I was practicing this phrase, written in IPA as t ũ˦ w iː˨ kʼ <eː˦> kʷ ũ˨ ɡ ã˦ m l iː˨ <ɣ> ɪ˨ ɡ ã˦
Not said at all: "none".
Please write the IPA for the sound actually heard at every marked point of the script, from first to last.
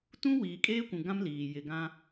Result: eː˦, j

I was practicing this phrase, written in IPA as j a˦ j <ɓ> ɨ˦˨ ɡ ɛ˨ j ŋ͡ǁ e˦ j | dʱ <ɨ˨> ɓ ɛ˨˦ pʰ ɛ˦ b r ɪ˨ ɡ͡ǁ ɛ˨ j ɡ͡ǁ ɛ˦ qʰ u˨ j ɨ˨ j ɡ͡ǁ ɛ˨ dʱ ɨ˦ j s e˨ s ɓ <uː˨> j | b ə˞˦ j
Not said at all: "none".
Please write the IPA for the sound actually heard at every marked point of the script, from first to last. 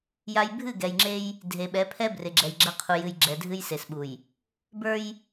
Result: bʱ, e˨, u˨

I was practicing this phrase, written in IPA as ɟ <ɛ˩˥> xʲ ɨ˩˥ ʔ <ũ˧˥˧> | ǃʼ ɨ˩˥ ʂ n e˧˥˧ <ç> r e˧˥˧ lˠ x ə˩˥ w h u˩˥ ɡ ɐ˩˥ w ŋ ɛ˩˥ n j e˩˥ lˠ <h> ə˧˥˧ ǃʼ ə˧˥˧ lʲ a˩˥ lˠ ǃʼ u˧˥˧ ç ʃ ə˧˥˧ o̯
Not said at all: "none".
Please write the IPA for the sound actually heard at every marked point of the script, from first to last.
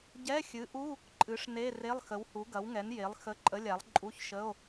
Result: ɛ˧˥˧, u˧˥˧, none, x

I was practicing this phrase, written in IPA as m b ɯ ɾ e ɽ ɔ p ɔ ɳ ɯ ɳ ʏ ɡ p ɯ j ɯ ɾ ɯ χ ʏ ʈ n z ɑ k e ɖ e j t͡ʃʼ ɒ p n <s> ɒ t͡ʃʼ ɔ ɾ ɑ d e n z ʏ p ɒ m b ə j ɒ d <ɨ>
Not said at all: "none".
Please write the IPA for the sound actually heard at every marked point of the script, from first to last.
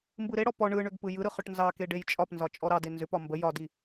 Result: z, i

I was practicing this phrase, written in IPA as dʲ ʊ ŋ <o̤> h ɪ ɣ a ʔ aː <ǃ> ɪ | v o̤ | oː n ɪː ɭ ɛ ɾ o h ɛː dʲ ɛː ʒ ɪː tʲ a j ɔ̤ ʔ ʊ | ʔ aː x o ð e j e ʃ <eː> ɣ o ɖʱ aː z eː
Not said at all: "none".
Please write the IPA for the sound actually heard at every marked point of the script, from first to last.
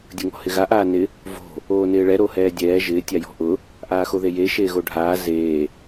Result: ɔ̤, n, eː

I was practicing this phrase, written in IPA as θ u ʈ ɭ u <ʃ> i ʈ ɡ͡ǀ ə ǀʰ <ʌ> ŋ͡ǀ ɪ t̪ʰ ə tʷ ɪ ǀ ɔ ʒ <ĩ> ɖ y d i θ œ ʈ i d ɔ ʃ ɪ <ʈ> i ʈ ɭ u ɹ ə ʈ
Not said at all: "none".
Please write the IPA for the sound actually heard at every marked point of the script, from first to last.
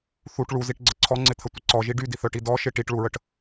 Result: z, ɔ, i, ʈ

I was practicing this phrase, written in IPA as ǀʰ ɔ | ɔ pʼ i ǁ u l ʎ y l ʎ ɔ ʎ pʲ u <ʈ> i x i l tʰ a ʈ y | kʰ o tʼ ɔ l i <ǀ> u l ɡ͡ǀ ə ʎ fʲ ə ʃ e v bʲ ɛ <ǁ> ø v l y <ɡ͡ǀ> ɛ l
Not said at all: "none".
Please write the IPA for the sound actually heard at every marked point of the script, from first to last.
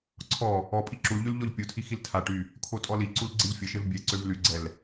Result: tʰ, ǀ, ǀ, ɡ͡ǀ

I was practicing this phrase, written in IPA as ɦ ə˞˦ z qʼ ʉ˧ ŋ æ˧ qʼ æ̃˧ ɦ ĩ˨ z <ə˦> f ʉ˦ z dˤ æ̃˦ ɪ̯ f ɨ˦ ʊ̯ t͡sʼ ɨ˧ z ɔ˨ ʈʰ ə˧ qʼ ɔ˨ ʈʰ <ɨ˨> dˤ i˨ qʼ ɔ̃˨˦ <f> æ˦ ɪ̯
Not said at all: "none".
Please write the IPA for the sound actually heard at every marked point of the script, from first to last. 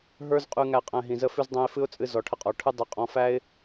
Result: ə˦, ɨ˦, f

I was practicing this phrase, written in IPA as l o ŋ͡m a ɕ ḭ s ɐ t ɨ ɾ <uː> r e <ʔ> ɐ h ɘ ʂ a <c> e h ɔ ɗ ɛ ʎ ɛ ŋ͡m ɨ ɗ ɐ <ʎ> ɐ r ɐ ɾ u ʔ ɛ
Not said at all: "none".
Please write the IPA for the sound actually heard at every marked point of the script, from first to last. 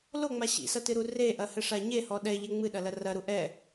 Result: u, ʔ, ɲ, l

